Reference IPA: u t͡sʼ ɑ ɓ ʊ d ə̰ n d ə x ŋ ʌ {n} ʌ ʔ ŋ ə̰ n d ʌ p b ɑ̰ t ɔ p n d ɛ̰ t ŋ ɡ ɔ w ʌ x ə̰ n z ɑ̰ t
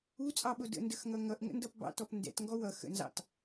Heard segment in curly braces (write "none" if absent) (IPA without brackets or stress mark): ŋ